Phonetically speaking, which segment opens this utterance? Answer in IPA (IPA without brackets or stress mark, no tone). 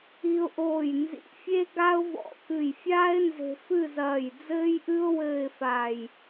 i